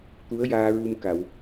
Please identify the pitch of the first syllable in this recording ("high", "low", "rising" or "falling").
rising